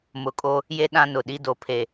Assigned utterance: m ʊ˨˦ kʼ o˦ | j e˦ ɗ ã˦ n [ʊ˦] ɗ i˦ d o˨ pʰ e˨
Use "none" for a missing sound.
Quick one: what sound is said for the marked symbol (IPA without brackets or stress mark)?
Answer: ʊ˨